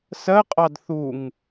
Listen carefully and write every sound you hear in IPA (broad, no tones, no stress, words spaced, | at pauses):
sɜqʼɑd θuŋ